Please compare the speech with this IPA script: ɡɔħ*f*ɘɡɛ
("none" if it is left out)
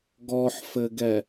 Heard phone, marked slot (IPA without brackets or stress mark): f